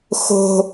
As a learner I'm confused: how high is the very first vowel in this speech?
mid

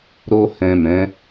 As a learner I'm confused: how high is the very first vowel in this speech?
mid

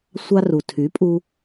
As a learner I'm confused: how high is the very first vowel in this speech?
low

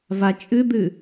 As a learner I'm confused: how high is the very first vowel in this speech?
low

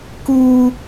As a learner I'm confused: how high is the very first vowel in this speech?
high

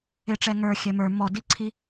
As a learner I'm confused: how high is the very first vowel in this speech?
high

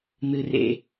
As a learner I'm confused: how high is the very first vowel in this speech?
high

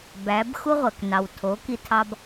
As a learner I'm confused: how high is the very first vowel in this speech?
low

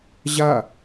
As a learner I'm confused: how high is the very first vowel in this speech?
low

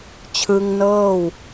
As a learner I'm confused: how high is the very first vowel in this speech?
high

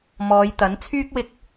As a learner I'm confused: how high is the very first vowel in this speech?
mid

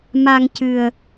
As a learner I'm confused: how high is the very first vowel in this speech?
low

